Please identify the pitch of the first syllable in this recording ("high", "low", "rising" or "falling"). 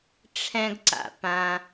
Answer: high